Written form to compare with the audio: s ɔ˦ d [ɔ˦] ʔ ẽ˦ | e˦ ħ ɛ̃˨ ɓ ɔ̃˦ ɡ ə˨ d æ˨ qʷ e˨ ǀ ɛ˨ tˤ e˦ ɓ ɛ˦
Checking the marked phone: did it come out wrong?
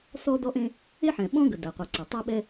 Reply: no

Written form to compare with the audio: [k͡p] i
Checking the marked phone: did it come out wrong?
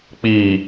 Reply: no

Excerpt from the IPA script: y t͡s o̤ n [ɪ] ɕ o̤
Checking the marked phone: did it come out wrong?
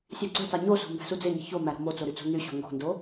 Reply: yes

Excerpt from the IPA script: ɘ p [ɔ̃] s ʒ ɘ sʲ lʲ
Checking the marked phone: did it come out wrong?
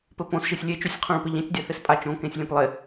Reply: yes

